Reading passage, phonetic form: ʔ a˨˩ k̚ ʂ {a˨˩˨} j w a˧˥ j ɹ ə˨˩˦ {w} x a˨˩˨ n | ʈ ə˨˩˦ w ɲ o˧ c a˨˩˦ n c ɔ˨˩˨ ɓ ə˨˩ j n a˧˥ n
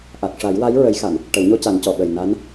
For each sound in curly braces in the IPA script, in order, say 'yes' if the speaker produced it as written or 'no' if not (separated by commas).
no, no